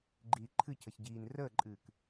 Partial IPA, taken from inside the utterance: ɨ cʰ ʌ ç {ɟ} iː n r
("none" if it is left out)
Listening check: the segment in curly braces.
ɟ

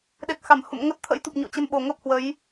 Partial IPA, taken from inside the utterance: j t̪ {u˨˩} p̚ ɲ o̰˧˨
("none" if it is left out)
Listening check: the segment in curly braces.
u˨˩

